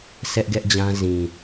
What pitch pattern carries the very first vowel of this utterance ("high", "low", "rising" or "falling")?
high